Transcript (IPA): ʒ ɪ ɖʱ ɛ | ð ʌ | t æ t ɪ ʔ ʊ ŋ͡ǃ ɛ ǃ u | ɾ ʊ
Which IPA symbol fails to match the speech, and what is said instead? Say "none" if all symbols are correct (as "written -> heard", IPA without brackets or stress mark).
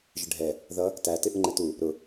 ǃ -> t